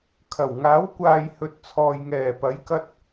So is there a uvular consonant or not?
no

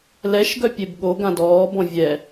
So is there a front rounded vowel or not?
yes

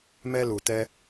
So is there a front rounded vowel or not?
no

